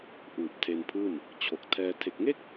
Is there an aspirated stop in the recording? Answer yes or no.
yes